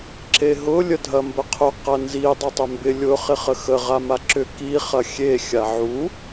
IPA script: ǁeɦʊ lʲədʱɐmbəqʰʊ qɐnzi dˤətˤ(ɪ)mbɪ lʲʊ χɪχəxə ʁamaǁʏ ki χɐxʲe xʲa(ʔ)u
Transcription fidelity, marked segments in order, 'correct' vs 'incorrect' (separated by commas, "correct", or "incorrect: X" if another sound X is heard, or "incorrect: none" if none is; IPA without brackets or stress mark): incorrect: ʏ, incorrect: ʕ